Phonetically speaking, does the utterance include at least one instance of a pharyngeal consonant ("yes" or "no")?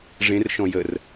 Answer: no